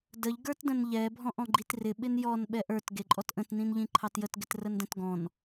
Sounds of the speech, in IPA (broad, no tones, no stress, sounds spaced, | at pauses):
d ə ʎ ɡ ə˞ t d ə̃ n ʎ ɛ bʱ ɔ̃ ʔ ɔ̃ ɡ͡ǃ i t r ɪ ɓ ɪ n j ɔ n ɓ ɛ ʔ ə˞ t ɡ e ǃʼ ɔ t ʔ ə̃ t n ĩ n ʎ ĩ ǃʰ ɑ t j ə t ɡ ɪ t r ə n d ə̃ t ɡ ɔ̃ n